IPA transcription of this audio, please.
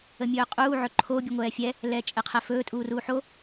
ə mʲ ɵː qʼ uː ʕ ɵ ǃʰ o bʲ u ŋʷ ɛː fʲ ɛ | l ɛː t͡ʃʼ ɛ qʰ ɛ f ɵː tʼ uː r uː ħ o

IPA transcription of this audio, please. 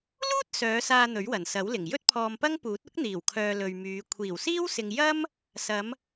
l uː˥ t̚ s œː˨˧ s aː˧ n̪ ɵ˨˥ ɥ w ɐ˨˩ n s ɐ˨˥ w l ɪ˨˩ ŋ j ɵ˥ t̚ pʰ ɔː˧ m p ɐ˥ ŋ p uː˨˥ t̚ ʊ˥ k̚ n̪ iː˨˩ w kʰ œː˨ l ɵ˨ ɥ m yː˨˧ kʷʰ iː˨˩ w s iː˥ w s ɪ˨ ŋ j ɐ˥ m | s ɐ˨˧ m

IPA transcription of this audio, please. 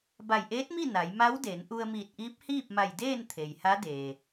b a˧˩ j ʔ eː˧˥ t̚ m i˥˨ n a˩˧ j m a˧˥ w d e˩˧ n ʔ u˧ ə̯ m iː˧˩ t̚ ʔ iː˧˥ p̚ h iː˥˨ p̚ m a˧˩ j d eː˥˨ n t̪ʰ e˩ j h a˧˥ d eː˩

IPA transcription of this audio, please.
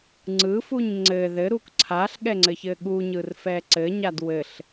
ŋ͡ǀ ɯ f u ɲ ŋ͡ǀ ɘ ð ɘ ɾ u k ǀʰ a ɬ ɠ ɛ ŋ͡ǀ ɘ ç ɘ ɠ u ɲ ɯ r f ɛ ǀ ɘ ɲ a d w ɘ ɬ

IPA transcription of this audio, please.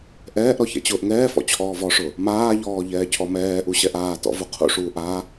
ʔ ɛː ʔ ɾ ɔ ç ɛ̰ t͡ɕ ʊː ʔ ŋ ɛː f ɔ̰ t͡ɕʰ ɔː v ɔ ʂ ʊ | m aː ʎ ɔː ʎ ɛː cʰ ɔ m ɛː ʔ u ɕ ɛ ʔ aː t ɔ̰ v u qʰ ṵ ʂ uː ʔ a

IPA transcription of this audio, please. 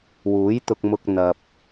w uː˨˥ j t̪ ʊ˧ k̚ m ʊ˧ k̚ n̪ ɐ˨ p̚

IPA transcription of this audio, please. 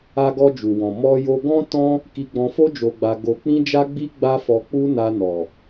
a˧ ɡ ɔ˧ d͡ʒ u˨ w ɔ̃˨ m ɔ˧ j o˧ ɡ ɔ̃˦ t ɔ̃˦ | k i˧ ɡ͡b ɔ̃˧ f o˦ d͡ʒ o˧ ɡ͡b a˧ ɡ o˧ k͡p ĩ˦ d͡ʒ a˦ ɡ͡b i˦ ɡ͡b a˦ f ɔ˧ k͡p u˦ n a˧ n ɔ˨

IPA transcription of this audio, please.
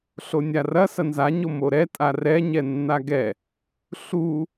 ɬ o nʲ a r ɐ s ɐ n z a ɲ o m o ɾ ɛ tʼ a r ɛ ɲ ɛ nː a ɡ ɛ | ɬ u

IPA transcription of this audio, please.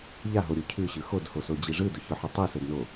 ʎ a ɦ o ɾʲ u cʰ ʉ ɕ ɯ x o d h o s o d͡ʑ i ʐ ɯ d ʊ ç ʊ ħ ə tˤ ɯ s ə d n o

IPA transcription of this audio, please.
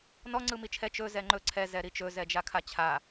n ɔ ŋ͡ǀ ɯ m i t͡ʃʰ ɛ t͡ʃ ɵ z ɛ ŋ͡ǃ ɵ ǀʰ ɛ z ɛ ɾ i t͡ʃ ɵ z ɛ d͡ʒ a kʰ a t͡ɕʰ a

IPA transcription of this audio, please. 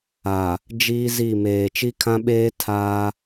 a˨ | d͡ʒ iː˦ z i˦˨ m eː˨ t͡ʃ i˦ kʰ ã˦ ɓ eː˦ tʰ aː˦

